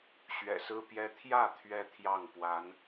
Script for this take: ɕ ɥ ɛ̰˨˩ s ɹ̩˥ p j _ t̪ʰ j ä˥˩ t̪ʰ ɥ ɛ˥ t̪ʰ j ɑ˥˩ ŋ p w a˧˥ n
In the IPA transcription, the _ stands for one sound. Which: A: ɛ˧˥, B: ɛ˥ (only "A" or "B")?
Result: B